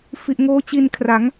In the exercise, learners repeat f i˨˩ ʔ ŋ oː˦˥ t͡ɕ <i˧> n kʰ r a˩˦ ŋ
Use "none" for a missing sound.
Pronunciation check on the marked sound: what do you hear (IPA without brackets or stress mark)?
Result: i˧